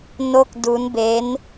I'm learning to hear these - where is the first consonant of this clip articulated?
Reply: tongue tip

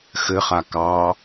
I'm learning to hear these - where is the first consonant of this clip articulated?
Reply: velum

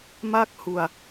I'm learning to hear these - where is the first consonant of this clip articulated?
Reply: lips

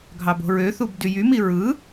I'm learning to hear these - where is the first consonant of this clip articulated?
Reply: velum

